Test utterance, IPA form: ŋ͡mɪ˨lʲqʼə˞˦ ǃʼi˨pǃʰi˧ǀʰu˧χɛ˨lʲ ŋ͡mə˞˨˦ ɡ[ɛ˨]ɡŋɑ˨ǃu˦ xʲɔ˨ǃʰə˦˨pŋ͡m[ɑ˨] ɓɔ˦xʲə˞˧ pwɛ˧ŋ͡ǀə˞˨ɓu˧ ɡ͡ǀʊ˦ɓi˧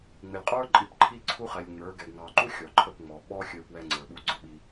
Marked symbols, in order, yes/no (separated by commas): yes, no